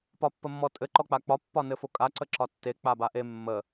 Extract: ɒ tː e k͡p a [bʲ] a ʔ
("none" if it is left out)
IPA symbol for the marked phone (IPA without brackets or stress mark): b